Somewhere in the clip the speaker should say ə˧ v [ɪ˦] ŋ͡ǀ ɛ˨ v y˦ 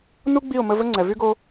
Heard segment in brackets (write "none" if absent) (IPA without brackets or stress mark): ə˦